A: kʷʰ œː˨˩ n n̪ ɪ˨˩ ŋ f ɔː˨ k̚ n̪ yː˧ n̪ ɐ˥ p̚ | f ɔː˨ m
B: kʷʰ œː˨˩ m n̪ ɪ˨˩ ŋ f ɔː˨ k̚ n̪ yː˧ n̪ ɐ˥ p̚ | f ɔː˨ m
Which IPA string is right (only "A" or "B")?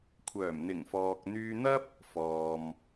B